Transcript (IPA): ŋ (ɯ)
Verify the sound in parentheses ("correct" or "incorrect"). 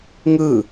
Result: correct